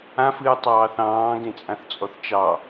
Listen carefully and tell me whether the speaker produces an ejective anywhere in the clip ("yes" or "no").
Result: yes